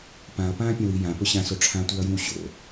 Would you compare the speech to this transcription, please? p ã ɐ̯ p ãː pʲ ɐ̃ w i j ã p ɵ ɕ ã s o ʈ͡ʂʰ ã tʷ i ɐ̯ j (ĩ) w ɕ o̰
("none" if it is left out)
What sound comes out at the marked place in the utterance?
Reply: ĩ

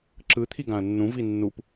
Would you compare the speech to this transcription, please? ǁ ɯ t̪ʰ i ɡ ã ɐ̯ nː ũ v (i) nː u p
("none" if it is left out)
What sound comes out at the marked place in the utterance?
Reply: i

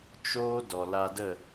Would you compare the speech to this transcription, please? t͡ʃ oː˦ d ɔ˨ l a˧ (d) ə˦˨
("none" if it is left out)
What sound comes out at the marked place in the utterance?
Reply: d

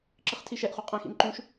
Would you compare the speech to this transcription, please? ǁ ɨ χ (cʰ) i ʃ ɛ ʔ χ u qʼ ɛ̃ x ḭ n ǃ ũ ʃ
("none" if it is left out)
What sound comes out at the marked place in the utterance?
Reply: tʰ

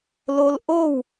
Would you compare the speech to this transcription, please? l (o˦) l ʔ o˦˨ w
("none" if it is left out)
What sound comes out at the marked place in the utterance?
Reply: o˦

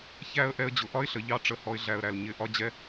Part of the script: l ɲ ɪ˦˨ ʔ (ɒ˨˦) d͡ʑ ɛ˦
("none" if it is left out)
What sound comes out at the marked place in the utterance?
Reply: ɒ˦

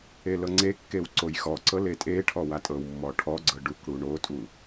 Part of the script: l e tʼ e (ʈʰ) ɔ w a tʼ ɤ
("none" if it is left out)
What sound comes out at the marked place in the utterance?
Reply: ʈʰ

